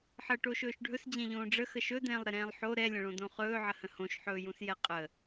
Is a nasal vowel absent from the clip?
no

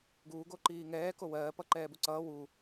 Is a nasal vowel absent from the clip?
yes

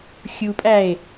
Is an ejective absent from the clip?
no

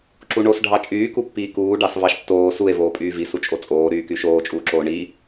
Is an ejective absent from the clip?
no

